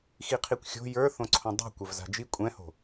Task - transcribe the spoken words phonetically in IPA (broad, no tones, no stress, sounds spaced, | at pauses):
x i qʰ i kʷ xʲ o̤ j ə˞ θ õ ǀʰ õ dˤ i̤ kʷ ɛ v z a̤ d͡ʒ i kʷʼ ɛ̃ h o̤